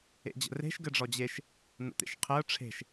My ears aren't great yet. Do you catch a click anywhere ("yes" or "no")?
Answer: no